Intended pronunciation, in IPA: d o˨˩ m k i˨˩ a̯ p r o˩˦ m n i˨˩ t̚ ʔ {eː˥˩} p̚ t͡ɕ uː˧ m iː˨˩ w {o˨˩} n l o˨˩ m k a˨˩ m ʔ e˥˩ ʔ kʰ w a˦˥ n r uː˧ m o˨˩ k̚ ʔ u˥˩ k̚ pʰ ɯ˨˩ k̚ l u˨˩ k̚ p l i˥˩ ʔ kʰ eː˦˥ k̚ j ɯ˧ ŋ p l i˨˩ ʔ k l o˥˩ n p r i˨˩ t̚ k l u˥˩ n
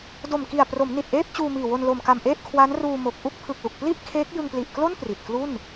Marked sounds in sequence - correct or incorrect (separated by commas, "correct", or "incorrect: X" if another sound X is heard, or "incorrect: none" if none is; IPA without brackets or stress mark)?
correct, incorrect: o˧